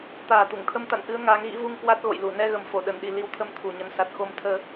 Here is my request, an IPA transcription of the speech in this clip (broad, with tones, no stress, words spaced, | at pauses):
t̪aː˨˩t̪u˧˩ŋt̪ʰə˧m t̪a̰˧˨nʔɨ˨˦ə̯ ŋaː˨˦ŋɣḭ˧˥vu˧ŋ kwa˦˥t̚ɣo̰˧˨jlu˧˩ nɛ˧ɣə˨˩m fo˧˩ɗə˧˩nɗi˨˩ li˨˦wt̪ʰə˨˦m t̪ʰu˨˩ɲə˨˦n sa˨˩t̚xo˧mt̪ʰəː˧